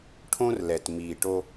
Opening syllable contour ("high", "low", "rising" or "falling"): high